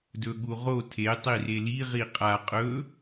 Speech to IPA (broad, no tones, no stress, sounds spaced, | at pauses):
d ɵ ɠ u ʁ o tʰ e tˤ i r e l i ʁ i qʼ a qʼ ɵ